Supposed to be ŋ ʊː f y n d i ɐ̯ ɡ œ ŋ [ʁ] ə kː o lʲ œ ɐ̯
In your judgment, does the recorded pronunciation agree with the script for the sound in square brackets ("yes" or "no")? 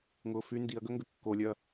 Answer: no